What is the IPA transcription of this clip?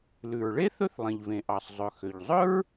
l ʉ˩ ɹ ɭ e˥ θ ɵ˥ θ lˠ ĩ˩ ʎ v ẽ˩ ʔ ɑ˩ sˤ zˤ ɵ˩ x ø˩ ʎ zˤ ɵ˥ ɹ

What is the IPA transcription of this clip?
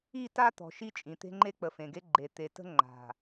i˦˨ t a˦ t̪ ɔ̤˨ ʃ i˦ t͡ʃʼ ĩ˨ t̪ e̤˦ ŋ͡ǃ e˦ k͡p ə˨ f ẽ˨ ɡ e˦ ɡ͡ǃ e˨ t̪ e˨ t ə̤˦ ŋ͡ǃ a̤˨

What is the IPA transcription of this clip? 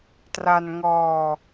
t r a˧ n ŋ ɔː˧

